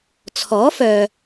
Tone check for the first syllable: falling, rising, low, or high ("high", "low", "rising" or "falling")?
rising